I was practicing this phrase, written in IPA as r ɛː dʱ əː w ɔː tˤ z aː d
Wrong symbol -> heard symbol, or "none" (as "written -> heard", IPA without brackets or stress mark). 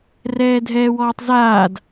əː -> ɛː